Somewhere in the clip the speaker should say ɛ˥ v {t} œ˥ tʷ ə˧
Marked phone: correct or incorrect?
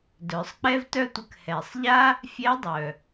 correct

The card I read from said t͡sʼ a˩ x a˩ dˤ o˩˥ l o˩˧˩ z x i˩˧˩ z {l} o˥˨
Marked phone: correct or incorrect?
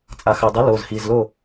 correct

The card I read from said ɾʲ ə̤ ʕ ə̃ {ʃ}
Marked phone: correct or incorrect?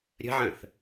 incorrect: θ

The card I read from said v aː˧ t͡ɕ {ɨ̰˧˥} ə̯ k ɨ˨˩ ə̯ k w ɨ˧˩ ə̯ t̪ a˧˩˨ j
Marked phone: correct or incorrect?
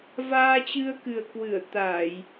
incorrect: ɨ˧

